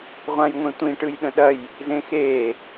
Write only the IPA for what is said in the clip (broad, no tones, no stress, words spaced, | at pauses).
ʁʷãjŋʷẽtʷĩ ʈɯjɗə̃ɗɐj | zẽxe